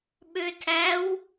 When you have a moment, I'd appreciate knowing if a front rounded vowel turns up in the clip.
yes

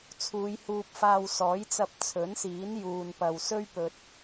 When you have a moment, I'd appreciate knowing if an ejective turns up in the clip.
no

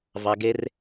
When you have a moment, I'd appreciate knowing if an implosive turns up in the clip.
no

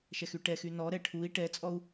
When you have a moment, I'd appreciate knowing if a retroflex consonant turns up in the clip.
yes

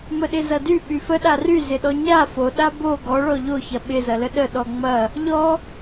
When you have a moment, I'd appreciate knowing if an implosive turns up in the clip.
yes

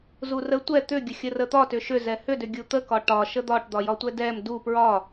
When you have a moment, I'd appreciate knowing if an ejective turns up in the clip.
no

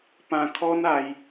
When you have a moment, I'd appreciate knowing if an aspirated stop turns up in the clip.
yes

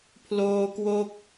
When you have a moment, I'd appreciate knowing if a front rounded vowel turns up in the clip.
no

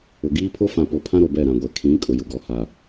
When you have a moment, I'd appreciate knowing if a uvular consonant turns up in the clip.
no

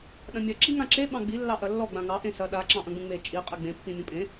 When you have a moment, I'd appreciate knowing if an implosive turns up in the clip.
yes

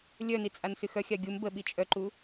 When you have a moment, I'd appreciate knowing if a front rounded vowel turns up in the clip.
yes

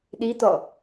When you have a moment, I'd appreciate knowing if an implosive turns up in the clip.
yes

